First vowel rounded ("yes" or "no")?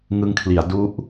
no